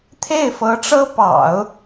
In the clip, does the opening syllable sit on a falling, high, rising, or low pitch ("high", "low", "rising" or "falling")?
falling